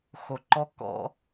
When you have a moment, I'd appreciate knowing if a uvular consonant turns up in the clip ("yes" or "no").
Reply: no